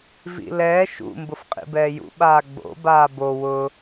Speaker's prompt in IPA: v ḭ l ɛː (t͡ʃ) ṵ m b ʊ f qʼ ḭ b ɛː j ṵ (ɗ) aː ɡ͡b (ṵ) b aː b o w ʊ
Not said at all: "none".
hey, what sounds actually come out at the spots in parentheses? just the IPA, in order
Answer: ʃ, ɓ, o̰

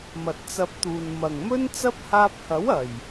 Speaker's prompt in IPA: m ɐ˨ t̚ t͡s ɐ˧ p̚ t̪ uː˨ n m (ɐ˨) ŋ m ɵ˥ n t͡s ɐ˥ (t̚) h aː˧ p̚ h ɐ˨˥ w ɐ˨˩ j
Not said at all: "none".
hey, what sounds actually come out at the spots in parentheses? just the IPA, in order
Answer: ɐ˨˩, p̚

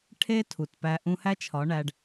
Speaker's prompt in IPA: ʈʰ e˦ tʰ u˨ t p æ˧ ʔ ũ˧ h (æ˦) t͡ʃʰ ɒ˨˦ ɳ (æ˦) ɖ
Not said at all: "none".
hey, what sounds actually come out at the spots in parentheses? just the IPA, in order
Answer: æ˦, æ˧

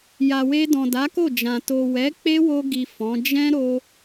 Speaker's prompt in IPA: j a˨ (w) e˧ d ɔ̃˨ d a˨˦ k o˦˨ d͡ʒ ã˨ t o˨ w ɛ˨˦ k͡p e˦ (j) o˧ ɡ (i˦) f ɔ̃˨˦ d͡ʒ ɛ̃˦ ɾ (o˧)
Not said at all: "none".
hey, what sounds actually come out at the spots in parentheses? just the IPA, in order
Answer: w, w, i˨, o˧

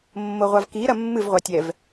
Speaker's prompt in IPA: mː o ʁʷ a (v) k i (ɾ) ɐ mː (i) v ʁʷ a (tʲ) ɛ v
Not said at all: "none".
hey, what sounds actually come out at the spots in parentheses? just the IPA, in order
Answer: v, ɾ, ɨ, tʲ

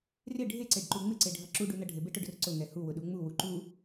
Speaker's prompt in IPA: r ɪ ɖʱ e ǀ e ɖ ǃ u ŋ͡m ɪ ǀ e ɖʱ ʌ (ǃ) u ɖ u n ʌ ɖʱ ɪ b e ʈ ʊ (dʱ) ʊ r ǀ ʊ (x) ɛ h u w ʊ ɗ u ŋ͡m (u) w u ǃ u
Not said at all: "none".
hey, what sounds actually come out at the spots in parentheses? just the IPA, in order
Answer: ǁ, ɖ, ŋ, u

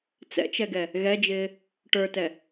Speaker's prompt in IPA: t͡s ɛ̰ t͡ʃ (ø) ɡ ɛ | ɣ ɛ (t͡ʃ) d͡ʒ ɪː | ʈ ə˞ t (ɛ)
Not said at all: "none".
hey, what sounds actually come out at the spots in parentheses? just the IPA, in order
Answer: ɛ, none, ɛ

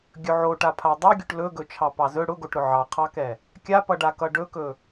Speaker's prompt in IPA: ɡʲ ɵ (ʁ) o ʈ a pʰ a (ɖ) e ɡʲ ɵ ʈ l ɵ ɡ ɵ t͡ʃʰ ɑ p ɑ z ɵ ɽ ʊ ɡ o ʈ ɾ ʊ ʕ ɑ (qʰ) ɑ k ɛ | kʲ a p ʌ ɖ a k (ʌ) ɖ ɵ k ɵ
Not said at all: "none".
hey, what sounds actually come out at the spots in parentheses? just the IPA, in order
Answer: ʕ, dˤ, qʰ, ʌ

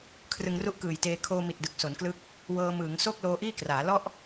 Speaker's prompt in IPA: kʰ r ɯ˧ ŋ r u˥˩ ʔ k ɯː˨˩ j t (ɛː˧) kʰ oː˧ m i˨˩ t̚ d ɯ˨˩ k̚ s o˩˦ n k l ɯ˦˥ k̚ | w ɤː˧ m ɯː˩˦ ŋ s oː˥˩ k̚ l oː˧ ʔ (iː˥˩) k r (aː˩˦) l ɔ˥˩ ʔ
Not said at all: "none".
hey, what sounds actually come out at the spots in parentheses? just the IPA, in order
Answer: eː˧, iː˥˩, aː˩˦

